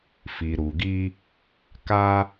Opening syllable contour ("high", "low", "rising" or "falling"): low